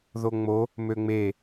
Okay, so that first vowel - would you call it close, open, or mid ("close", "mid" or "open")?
mid